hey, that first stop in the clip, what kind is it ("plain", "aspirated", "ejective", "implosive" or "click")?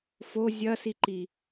click